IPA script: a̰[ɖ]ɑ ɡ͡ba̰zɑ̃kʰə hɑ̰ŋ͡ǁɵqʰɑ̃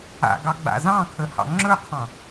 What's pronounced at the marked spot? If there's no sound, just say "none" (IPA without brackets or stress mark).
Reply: ɡ